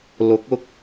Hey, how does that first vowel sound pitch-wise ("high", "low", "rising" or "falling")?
rising